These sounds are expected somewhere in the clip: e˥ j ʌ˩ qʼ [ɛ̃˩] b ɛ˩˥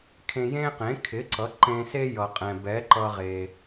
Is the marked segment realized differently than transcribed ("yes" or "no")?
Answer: no